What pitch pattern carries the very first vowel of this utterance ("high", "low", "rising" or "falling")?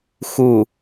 low